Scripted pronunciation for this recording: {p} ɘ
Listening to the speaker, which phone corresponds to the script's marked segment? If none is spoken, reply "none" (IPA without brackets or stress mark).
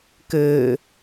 k